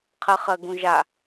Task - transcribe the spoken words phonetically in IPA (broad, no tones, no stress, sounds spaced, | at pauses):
qʰ ɜ χ ɜ ɡ ũ ʒ a